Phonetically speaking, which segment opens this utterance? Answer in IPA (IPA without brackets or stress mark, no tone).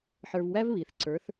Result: ħ